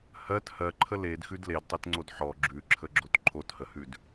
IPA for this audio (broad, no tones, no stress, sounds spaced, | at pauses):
h ɜ t h ɜ ǃʰ ə l e d x ʉ d l e d tˤ e t ŋ͡ǀ o d ħ ɔ ɡ͡ǁ ʉ ǁʰ ə ɡ͡ǁ o t ǃʰ o t h ə h ʉ d